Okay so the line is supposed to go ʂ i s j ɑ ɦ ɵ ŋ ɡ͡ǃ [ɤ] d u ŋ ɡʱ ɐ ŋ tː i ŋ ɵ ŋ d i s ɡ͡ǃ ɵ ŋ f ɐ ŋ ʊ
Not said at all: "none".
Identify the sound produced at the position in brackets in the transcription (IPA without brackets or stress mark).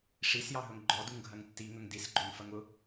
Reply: ɔ